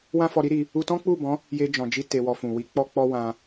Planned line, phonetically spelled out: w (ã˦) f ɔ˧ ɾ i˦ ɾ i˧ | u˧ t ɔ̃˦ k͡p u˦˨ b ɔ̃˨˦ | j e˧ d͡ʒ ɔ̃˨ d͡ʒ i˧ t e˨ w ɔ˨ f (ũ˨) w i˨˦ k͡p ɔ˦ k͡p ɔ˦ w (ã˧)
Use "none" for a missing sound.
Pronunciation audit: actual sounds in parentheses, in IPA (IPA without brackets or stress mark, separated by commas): ã˦, ũ˨, ã˧